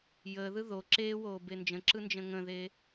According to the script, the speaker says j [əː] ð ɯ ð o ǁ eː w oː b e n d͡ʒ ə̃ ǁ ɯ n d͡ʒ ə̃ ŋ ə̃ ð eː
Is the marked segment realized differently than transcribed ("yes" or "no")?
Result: no